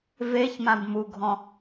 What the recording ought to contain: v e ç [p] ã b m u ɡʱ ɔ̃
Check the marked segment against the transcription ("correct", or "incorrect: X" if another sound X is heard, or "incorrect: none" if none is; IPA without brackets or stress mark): incorrect: m